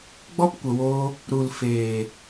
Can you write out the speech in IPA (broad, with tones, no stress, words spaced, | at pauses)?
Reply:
ɡ͡bɔ˦pkʷə˨woː˧ | ɾu˨l feː˨